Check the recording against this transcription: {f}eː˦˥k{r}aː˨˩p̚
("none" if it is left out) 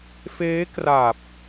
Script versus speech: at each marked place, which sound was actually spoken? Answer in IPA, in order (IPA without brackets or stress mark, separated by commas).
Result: f, r